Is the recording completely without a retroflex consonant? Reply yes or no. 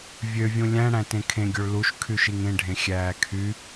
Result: no